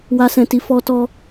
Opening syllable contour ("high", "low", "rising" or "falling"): high